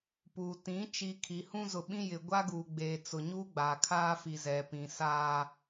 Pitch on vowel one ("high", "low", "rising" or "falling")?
low